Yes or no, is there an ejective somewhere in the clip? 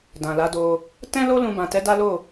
no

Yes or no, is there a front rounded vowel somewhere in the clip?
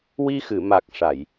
no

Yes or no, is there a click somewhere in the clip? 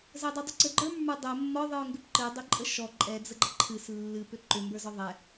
yes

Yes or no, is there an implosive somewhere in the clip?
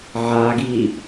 no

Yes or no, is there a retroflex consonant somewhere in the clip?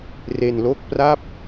no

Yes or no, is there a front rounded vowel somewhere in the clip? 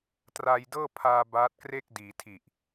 no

